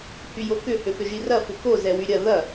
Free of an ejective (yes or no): yes